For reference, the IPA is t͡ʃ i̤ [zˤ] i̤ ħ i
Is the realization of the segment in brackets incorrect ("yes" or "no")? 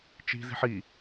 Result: yes